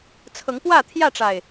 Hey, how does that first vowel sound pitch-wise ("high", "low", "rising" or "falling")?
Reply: rising